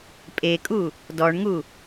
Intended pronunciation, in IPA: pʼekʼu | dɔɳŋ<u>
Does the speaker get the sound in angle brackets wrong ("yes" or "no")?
no